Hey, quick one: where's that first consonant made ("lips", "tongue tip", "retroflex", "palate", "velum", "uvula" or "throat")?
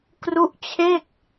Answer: velum